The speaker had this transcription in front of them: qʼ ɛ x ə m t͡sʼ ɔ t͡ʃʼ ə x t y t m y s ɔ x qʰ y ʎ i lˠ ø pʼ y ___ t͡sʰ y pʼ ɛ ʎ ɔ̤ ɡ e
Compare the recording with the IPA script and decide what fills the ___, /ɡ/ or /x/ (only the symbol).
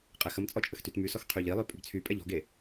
ɡ